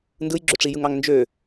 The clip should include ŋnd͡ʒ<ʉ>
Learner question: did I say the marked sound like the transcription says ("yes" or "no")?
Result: no